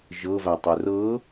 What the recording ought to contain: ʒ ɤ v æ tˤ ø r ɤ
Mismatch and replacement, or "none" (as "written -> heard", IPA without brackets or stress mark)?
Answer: none